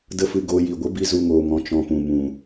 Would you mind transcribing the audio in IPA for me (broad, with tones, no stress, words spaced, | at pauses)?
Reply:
də˦fɨ˧ ɡo˧ ji˨ɡʷə˨˦bi˧ zu˧ŋoː˨ŋɔ̃˨ t͡ʃɔ̃˧pũ˨ mũ˨